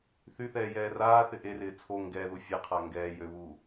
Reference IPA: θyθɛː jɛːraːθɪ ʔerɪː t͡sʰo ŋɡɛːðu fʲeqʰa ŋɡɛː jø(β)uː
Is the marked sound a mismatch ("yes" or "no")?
no